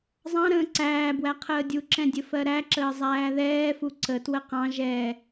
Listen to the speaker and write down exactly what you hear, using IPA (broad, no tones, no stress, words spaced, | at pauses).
zˤɑ̃ ɾə̃ːǀæːbwæ qʰəːdʲuǁɛ̃ dʲəfɜɾæǁəː zˤæːðɛːfu ǀətwə qɑ̃ ʒɛː